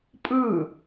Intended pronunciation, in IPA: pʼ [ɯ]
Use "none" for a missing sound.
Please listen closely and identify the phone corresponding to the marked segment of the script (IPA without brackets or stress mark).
ɯ